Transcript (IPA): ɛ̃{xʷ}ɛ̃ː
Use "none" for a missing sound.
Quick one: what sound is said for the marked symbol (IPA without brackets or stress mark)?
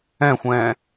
xʷ